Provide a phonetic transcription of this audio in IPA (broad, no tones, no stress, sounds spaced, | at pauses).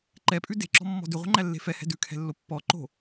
ǃ ɛ pʼ ʉ d e̤ ǁ ɔ̤ mː ɔ̤ d ʉ ʁʷ e̤ ŋ͡ǃ æ lː e̤ f ɛ h ɛ̤ d ʉ kʰ ɛ̤ lː o pː ɔ ǃ o̤